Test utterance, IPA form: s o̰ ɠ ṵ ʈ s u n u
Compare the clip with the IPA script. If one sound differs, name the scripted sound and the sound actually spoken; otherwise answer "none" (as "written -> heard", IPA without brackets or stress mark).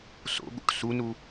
none